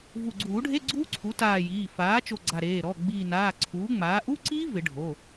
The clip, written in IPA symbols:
vu˧˩ɡ͡ǀuː˨˩˦ɖʱe˧˥˧ ɡ͡ǀuː˦˥ǀʰu˩˥taː˧˩ jiː˩˧˩ faː˩˥t͡ʃo˧˩ ɡ͡ǀa˧˩ɾeː˩˧˩ ɾɔ˩˧˩ ɡ͡biː˧˩ naː˩˧˩ǀʰuː˩˥ŋ͡maː˩˥ ʔu˧˥˧ǀiː˦˥ vɪ˨˩˦ɖʱo˩˧˩

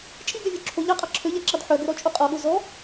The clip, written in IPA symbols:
t͡ʃʼiɡøvʲø ǁʰo ʎɑqʼɑ ǁʰøʎæǁɑd ħœɡøɾɔt͡ʃʼu qʼɔɠo zɔ

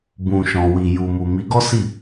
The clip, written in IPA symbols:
bũ˨ʃɔ̃˨wi˨ ju˨mu˨ mi˨˦ɡɔ˦si˦˨

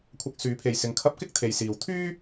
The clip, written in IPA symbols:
kʷʰɐ˧k̚syː˨˥pʰe˨jsɪ˨˧ŋ kʰɐ˧p̚kɪ˥k̚ t̪ʰe˨jsiː˨w t̪ʰyː˥

